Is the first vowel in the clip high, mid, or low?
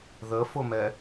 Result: mid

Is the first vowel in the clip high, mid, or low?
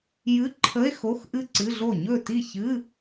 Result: high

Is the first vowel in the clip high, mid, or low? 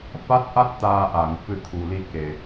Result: low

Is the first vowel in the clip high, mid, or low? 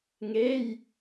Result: mid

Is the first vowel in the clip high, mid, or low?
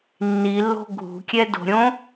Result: high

